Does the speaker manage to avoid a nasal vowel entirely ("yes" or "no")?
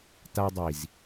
yes